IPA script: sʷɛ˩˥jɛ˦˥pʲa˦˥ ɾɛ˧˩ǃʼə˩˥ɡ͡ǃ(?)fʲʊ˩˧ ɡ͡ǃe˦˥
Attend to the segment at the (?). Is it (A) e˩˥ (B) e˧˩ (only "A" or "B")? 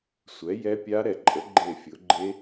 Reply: B